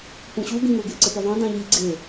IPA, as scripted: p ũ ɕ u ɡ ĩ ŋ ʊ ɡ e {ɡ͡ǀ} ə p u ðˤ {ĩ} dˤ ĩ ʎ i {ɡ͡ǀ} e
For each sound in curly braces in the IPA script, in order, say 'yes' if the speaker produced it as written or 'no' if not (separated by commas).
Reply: no, yes, yes